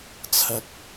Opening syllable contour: rising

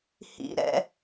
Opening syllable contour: high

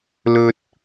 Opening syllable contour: high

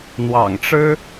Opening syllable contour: low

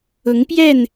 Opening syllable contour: rising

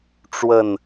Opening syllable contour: falling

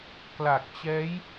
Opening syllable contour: low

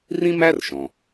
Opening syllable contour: high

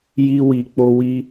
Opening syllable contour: high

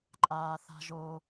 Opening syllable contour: low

